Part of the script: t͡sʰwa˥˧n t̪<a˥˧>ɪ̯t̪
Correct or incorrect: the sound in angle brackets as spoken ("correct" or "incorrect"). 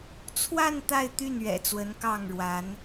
correct